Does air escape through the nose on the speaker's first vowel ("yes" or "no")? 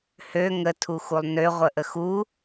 no